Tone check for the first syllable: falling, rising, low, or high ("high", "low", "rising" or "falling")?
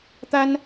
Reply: high